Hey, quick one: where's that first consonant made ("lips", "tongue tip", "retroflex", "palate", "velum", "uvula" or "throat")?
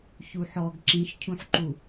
palate